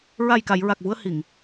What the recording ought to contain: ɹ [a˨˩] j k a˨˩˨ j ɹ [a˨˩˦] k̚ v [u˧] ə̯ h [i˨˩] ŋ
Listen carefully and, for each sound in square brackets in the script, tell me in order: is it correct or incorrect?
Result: correct, incorrect: a˨˩, correct, incorrect: i˨˩˨

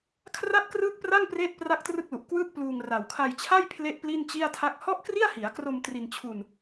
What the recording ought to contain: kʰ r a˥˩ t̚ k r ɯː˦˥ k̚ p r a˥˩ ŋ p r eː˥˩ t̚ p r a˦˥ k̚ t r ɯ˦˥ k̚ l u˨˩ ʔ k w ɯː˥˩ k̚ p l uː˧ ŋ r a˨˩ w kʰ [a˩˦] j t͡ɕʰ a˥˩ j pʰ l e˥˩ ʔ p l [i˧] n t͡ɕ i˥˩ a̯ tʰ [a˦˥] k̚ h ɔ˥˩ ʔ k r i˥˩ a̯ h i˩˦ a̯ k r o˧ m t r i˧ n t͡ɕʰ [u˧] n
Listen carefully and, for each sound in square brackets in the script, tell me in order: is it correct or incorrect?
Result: incorrect: a˧, incorrect: i˥˩, incorrect: a˥˩, correct

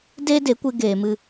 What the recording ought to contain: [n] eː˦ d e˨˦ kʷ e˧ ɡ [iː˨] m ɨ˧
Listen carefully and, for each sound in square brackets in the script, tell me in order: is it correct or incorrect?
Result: incorrect: d, incorrect: eː˨

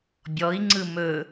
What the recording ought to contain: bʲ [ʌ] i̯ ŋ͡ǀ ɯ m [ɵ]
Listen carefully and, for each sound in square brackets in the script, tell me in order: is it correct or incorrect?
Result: incorrect: ɔ, correct

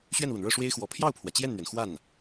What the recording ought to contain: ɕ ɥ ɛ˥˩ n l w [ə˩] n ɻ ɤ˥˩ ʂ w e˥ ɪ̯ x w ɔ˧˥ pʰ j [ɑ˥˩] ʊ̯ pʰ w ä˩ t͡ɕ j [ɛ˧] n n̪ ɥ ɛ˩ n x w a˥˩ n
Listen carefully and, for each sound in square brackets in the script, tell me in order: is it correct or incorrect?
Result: correct, correct, incorrect: ɛ˥˩

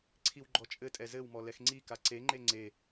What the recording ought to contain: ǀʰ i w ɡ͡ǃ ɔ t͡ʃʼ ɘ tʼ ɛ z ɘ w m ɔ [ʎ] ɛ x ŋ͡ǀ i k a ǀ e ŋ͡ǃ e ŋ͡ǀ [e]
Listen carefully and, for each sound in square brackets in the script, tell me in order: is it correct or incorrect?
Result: incorrect: l, correct

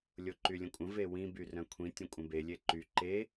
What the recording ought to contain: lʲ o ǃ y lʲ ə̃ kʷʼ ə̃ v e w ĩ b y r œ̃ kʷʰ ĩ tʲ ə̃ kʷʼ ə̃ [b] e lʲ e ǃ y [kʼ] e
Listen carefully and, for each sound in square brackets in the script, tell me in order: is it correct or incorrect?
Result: correct, incorrect: ǃ

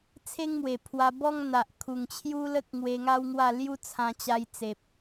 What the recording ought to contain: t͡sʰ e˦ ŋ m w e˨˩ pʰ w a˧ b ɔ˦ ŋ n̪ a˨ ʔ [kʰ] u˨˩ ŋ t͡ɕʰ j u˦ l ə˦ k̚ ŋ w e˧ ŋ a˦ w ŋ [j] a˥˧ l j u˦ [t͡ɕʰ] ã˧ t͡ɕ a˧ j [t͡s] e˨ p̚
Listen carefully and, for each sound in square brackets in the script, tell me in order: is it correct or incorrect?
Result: correct, incorrect: w, incorrect: t͡sʰ, correct

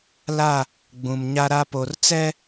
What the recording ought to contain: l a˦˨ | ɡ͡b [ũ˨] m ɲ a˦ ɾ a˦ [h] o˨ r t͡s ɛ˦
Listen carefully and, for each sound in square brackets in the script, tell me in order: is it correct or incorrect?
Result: correct, incorrect: p

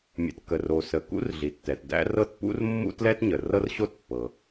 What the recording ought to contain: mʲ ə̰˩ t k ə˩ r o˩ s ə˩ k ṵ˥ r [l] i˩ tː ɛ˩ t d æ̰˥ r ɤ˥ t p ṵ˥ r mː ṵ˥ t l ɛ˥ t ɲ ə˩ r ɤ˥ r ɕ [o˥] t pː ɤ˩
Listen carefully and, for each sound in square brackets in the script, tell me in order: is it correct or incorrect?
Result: incorrect: ɮ, correct

